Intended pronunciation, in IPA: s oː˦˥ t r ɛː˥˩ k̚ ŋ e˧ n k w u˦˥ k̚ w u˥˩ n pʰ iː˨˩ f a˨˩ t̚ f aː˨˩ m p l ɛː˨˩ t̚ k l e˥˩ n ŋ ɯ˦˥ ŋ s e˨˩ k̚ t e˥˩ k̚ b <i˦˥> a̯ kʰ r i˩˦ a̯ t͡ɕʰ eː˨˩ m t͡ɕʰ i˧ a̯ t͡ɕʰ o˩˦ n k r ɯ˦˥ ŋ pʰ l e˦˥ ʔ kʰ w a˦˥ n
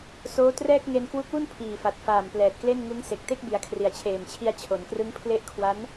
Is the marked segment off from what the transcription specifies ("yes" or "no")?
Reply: yes